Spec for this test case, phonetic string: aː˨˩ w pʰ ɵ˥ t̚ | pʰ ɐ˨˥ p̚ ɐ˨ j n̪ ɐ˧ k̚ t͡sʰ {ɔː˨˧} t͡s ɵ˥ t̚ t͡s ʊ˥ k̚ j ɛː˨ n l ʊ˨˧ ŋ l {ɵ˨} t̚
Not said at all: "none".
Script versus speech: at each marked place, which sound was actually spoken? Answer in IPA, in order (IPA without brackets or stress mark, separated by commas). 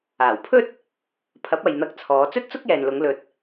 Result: ɔː˨˧, ɵ˨